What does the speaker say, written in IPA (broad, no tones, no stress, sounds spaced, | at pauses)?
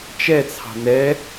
t͡ʃ ɛ t͡sʰ ɑ̤ n ɛ